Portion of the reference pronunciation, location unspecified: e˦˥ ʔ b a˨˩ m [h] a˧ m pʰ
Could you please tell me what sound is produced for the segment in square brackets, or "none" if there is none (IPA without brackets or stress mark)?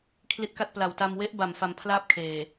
f